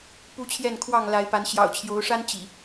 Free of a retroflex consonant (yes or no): no